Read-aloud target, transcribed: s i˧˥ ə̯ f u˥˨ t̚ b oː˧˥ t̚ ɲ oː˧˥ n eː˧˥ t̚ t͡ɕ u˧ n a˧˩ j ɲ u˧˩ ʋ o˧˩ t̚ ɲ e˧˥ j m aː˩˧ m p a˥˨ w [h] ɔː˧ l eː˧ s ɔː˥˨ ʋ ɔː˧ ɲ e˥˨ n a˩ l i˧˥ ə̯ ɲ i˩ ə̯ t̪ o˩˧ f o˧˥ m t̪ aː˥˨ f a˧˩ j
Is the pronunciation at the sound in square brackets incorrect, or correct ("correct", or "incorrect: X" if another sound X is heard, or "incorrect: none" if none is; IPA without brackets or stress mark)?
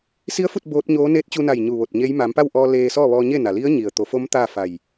incorrect: ʔ